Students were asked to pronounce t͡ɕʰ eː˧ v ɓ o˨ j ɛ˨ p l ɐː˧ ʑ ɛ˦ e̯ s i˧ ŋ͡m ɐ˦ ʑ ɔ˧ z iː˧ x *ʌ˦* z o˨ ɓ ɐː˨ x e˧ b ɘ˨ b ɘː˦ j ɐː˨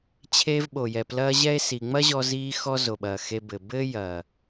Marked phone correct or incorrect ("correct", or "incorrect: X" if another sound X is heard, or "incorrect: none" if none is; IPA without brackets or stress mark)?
incorrect: ɔ˦